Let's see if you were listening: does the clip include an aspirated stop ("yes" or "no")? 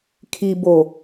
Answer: yes